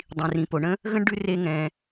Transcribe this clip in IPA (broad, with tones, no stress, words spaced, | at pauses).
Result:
dˤĩ˩rĩ˩po˩ɳə̃˥ | ɣə̃˥ɳɖʉ˦ re˦ ŋɛ̃˨